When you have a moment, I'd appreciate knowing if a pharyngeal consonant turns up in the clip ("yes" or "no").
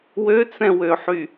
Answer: yes